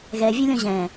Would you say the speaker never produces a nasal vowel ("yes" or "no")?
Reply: no